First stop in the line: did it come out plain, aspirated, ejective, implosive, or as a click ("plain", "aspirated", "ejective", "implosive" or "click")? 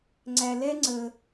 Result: click